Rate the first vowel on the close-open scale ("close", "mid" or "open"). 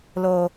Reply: mid